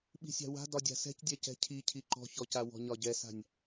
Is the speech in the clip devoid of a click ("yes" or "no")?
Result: no